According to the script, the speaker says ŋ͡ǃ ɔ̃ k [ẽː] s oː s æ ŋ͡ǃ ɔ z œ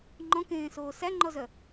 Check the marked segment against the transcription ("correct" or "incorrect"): correct